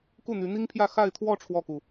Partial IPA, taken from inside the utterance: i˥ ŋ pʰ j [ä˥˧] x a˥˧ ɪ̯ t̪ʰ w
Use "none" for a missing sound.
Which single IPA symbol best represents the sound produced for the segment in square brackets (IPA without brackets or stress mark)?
ä˥˧